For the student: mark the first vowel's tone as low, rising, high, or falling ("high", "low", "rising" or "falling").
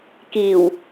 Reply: low